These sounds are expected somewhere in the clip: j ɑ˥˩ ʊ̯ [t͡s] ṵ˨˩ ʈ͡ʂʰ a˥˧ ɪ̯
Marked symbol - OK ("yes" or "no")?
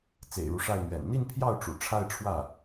no